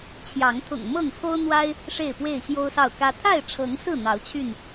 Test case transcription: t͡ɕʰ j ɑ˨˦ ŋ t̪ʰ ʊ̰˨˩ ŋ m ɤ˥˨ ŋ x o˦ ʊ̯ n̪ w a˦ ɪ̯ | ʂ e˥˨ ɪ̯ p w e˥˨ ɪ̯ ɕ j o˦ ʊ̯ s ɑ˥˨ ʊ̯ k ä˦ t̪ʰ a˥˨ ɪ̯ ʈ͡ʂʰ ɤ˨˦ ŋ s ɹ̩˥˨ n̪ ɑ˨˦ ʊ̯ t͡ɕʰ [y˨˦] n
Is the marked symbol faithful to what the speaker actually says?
no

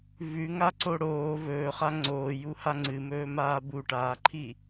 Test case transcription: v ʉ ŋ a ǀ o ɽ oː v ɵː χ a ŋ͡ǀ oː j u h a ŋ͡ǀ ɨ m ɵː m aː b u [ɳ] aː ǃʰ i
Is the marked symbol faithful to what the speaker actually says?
no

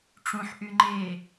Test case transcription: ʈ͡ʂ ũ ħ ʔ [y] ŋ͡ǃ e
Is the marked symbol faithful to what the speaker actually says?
yes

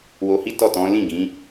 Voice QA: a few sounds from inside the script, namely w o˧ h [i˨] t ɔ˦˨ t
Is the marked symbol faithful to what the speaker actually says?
no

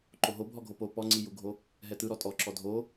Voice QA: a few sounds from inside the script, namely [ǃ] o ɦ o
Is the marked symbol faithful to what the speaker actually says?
yes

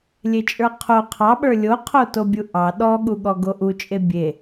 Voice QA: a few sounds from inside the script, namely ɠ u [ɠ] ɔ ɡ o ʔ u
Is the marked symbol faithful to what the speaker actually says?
yes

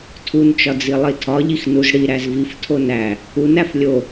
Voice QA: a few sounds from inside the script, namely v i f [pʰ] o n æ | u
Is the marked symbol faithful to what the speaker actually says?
no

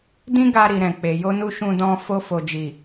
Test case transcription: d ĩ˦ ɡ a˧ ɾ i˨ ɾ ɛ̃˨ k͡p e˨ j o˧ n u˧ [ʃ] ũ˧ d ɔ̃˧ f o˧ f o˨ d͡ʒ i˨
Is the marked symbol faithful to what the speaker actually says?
yes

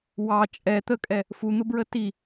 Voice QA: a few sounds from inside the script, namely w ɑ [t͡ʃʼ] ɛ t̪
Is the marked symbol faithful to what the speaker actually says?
yes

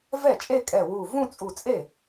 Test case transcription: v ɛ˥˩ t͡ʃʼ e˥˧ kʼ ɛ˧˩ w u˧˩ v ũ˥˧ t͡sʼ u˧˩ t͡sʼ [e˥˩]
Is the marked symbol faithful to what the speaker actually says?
yes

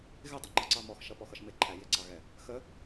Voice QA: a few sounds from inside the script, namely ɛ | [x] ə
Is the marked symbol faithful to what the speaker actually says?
yes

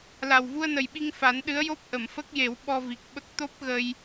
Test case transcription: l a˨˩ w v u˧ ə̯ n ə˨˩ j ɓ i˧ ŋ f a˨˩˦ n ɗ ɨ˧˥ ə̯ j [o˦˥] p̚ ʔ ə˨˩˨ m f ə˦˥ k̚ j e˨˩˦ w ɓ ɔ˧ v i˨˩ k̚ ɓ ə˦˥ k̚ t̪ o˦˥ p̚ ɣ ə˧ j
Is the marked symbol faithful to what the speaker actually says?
yes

